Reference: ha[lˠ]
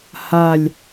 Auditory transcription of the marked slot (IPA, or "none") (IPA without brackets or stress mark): lʲ